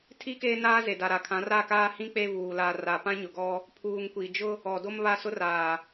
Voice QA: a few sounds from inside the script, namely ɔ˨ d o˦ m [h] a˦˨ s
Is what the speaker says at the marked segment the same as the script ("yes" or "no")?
no